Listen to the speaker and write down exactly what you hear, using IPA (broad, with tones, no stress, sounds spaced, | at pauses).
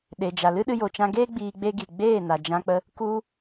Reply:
ɗ e˨ d͡ʒ a˨ l ɨ˦ ɗ ɨ˧ j o˨ t͡ʃ ã˧ ɡ eː˦ ɡ͡b iː˧ ɡ͡b e˦ ɡ i˨ ɡ͡b eː˦˨ n a˨ d͡ʒ ã˧ k͡p ə˧ | k u˧